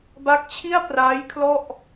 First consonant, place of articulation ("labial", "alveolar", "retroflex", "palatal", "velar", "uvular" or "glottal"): labial